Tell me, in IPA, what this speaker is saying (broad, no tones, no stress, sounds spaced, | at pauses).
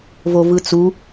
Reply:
v o v ɯ t͡s u